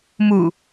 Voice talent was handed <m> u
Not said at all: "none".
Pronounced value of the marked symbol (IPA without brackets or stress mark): m